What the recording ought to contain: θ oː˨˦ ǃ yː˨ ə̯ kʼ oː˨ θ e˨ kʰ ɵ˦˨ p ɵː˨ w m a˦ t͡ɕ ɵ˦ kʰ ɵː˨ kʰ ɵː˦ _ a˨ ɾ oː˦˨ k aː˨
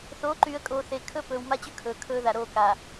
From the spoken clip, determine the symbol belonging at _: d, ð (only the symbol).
ð